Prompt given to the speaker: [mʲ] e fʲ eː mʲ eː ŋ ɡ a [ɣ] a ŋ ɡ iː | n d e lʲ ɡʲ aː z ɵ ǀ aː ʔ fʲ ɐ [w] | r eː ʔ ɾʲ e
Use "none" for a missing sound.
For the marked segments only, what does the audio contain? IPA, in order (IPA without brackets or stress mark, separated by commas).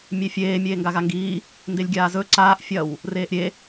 mʲ, ɣ, w